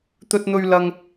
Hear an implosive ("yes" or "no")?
no